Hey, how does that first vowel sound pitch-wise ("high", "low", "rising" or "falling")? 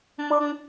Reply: high